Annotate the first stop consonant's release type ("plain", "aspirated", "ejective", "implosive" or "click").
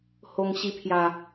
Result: aspirated